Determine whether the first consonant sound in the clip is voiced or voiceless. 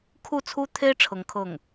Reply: voiceless